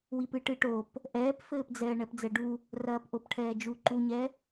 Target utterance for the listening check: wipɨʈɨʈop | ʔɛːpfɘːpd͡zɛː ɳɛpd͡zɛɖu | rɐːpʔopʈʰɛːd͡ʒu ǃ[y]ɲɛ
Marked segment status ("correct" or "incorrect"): incorrect